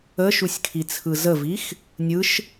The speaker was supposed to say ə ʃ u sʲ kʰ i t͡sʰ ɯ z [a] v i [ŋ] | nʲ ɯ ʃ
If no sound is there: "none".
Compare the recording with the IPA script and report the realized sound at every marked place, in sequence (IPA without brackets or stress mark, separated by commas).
ə, x